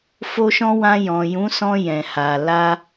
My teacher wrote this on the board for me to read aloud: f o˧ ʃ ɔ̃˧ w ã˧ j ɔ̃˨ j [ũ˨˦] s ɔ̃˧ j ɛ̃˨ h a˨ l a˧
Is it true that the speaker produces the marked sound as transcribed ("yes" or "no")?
yes